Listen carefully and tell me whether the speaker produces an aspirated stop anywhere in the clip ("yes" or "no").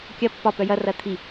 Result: yes